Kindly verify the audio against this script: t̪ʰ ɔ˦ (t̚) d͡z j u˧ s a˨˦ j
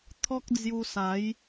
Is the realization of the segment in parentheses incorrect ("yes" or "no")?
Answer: yes